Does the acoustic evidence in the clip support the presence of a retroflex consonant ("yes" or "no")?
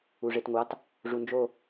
yes